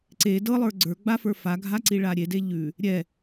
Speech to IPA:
ǀ e d ɤ lˠ ə˞ ɡ͡ǀ ə˞ ɡ͡b a f ə˞ f a ɡʱ a ǀ i ɭ a ɾʲ e d e ʎ ʉ | ɾʲ ɛ

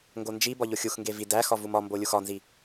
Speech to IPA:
ŋ ɡ o n d͡ʒ i b ɒ ʎ o xʲ u x ŋ ɡ e v i d æ x ɒ v u m ɒ m b o lʲ u x ɒ n z i

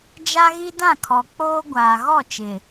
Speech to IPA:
d͡ʒ a˦ ɣ i˦ d ã˦˨ kʰ ɔ˨ k͡p oː˦ ɡʷ aː˨ ɣ ɔ˦˨ t͡ʃ ɪ˨

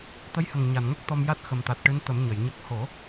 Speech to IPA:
t̪ ə˧˥ j h ə˨˩ ŋ ɲ a˨˩˨ n ŋ o˦˥ k̚ t̪ ɔ˧ m j a˦˥ t̚ x ə˨˩ m t̪ a˨˩ t̚ ʈ ɨ˧˥ n t̪ ə˨˩˦ m ɲ ə˨˩˨ j ɲ ə˦˥ k̚ h o˨˩˦

